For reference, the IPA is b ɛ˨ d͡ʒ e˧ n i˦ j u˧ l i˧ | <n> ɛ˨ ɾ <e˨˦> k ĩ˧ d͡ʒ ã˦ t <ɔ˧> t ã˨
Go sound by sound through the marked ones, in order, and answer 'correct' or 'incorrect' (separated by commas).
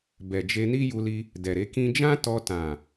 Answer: incorrect, correct, correct